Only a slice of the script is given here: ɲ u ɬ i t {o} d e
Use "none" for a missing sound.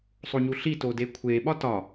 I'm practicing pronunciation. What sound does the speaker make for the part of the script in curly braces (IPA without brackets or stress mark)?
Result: o